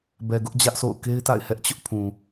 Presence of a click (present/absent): absent